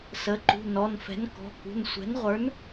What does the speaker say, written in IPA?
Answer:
sə˩˥ǃṳ˩˧˩ nɔ˩˧˩nfɛ̤˩˥nkɔ̤˩˧˩kṳ˩˧˩n sʷɛ̤˩˥nʁʷə˞˩˥n

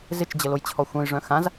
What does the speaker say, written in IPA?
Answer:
zɪt͡ʃd͡ʑəlojt͡ɕʰɔ xʷœ̃jʐœ̃ xãz

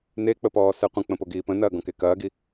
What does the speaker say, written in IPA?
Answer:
nek͡pəpɔːsɛ qʷə̃k͡pə̃poɡiː pə̃nɐːɡɔ̃ke kɐːɡi

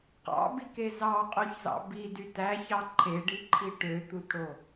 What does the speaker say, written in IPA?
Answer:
qɑ̰bike zɑqʼoçzɑ̰ bidy tæçɑ ǃʰeɖiǃʰi ʈøt̪utɽo

